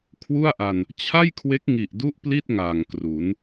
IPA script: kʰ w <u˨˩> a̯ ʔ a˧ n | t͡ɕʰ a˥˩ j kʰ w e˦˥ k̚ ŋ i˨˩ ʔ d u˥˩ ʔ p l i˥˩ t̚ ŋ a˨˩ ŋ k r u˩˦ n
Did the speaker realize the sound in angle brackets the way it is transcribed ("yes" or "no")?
no